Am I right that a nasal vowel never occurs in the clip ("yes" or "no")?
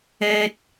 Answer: yes